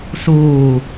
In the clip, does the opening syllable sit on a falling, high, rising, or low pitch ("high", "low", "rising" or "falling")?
low